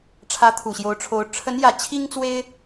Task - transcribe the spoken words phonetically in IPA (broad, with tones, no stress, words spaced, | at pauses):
ʈ͡ʂʰä˧˥t̪ʰu˨˩ɕjo˧˥ʊ̯ʈ͡ʂʰo˧˥ʊ̯ ʈ͡ʂʰə˧˥njä˨˩ t͡ɕʰi˥ŋt͡swe˥ɪ̯